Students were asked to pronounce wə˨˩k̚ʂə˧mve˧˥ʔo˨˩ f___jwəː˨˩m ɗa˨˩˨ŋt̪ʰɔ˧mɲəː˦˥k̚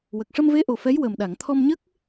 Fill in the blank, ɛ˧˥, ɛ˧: ɛ˧˥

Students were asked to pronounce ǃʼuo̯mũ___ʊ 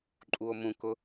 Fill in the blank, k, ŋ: k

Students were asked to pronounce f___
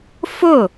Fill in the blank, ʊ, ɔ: ʊ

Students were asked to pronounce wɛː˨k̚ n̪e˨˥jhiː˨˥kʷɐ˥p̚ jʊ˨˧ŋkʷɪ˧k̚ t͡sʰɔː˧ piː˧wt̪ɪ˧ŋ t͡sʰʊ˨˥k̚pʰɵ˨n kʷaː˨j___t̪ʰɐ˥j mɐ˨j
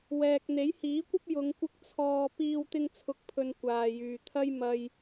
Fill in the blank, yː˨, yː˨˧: yː˨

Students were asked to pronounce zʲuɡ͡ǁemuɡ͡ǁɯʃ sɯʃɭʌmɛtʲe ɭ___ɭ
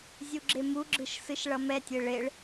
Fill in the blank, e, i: e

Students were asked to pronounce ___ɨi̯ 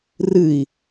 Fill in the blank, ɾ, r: r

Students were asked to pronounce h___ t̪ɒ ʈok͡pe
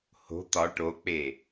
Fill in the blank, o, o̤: o̤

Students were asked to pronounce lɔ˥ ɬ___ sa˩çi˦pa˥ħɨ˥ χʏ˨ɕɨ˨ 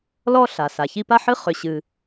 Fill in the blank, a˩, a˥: a˩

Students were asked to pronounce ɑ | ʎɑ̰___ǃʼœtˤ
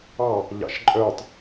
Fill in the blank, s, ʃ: ʃ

